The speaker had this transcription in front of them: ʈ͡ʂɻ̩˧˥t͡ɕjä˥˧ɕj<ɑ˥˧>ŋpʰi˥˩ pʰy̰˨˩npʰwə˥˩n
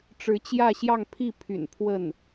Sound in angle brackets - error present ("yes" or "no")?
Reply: no